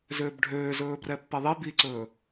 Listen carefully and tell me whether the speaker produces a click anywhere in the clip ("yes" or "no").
yes